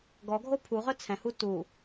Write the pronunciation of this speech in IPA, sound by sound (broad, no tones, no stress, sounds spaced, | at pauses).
ɡ ɔ ɡʱ o pʰ u ʁ œ t͡sʰ ɛ̃ h u t u